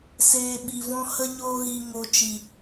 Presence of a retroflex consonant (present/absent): absent